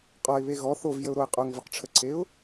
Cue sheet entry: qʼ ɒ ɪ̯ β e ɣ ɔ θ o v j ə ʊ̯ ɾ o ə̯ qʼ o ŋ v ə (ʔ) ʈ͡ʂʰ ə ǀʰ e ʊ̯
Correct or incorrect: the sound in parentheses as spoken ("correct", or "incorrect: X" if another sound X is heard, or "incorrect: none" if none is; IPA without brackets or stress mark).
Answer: incorrect: q